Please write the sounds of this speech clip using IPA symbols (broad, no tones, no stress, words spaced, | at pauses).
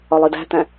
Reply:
ɒlˠidæ̤t̪æ̃